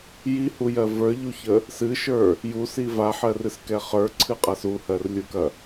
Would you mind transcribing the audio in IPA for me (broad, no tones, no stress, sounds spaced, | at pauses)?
j i h u j ɜ v ə˞ ʎ u ç ə | s ɨ ʃ ə˞ | j u s i v a ħ ɜ r ɨ s k ɛ χ ə˞ ǀʰ ɨ qʼ a s u h ɜ r lʲ u k ɐ